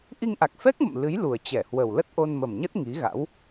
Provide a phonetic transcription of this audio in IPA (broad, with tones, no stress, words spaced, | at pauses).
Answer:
ʔi˧ŋʔa˨˩k̚fɛ˦˥k̚mə̰˧˨m lɨ˨˦jlu˨˩ə̯t͡ɕɛ˧˩hwə˨˩w lə˦˥t̚ʔo˧nmə˨˩mɲə˦˥t̚ ŋi˨˦ɣa̰˧˥w